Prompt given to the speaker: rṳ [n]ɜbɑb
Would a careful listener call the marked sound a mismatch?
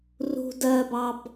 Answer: yes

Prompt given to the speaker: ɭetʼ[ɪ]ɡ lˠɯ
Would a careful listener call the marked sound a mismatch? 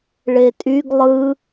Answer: yes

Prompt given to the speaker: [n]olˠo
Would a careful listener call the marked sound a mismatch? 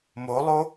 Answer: yes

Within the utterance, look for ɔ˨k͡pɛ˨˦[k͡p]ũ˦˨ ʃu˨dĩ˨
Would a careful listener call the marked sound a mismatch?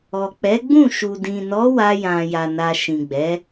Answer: yes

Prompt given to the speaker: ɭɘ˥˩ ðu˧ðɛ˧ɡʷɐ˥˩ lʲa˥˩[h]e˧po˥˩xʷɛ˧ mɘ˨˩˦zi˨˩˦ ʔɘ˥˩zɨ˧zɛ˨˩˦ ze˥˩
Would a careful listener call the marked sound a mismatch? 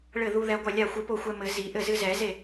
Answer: yes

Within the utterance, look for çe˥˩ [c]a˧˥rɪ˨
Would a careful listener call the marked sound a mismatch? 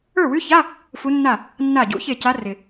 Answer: no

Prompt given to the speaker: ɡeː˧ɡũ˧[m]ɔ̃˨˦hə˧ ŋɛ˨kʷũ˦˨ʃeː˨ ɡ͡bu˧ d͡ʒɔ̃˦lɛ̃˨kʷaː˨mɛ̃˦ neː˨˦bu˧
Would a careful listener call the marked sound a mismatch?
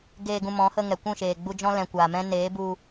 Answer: no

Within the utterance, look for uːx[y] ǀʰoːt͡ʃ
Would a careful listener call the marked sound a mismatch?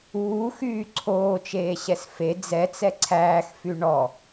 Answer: yes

